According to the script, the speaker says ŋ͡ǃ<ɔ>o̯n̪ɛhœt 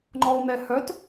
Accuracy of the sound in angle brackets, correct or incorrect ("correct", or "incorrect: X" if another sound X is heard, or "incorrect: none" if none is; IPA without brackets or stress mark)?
correct